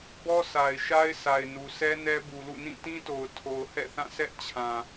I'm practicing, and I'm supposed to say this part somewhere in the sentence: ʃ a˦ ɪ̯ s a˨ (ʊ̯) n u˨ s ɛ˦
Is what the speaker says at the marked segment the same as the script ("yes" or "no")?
no